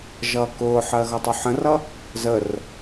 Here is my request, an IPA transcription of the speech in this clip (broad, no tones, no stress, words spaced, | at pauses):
ʒʌːkʊːħɜ ɣʌtˤuħə̃rʌ | zər